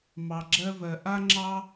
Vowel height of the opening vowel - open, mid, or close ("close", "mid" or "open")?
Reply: open